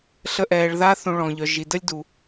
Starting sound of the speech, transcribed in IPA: ɬ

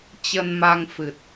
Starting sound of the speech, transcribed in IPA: t͡ɕ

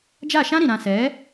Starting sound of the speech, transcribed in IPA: d͡ʒ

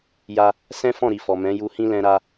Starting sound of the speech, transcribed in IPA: j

